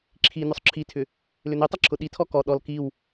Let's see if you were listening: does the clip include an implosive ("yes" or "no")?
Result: yes